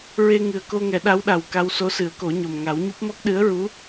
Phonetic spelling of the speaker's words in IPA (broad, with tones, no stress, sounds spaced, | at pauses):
ɹ e˧ ŋ ɨ˨˩ ə̯ k o˧ ŋ ɛ˨˩˦ ɗ a˧˥ w ɗ a˨˩ w k a˧ w s o˧˥ s ɨ˨˩˦ ə̯ k o˨˩˦ ɲ o˨˩ m ŋ a˨˩˦ w ɲ u˦˥ p̚ m ɔ˦˥ k̚ ɗ ɨ˧˥ ə̯ ɹ u˧˥